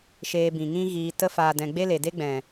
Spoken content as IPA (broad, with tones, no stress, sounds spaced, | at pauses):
ʃ eː˧ b ĩ˨ ŋ ĩ˦ ɣ iː˧ t ə˧ f aː˨ d ɛ̃˨ ɡ͡b e˦ l e˨ d e˦ ɡ͡b ɛ̃˨